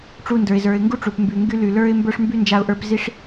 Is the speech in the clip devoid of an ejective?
yes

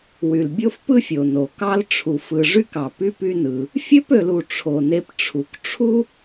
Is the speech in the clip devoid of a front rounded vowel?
no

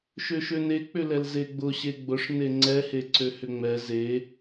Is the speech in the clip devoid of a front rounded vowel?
no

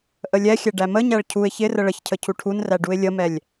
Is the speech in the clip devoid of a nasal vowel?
yes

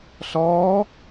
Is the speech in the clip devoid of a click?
yes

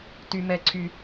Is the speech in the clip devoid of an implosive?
yes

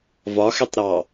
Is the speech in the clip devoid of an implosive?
yes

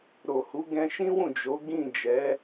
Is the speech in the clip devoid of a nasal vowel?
no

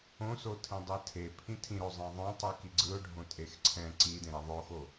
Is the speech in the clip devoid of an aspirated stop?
no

